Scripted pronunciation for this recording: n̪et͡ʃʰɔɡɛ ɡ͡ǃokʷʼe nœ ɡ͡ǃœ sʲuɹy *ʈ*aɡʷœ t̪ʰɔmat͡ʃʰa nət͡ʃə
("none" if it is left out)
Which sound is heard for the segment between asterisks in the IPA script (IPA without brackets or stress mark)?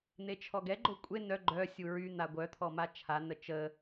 n̪